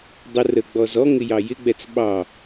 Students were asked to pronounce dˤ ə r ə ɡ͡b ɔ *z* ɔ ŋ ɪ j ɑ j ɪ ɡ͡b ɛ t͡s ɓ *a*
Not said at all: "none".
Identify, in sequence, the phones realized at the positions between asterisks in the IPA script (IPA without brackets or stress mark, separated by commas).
z, ɑ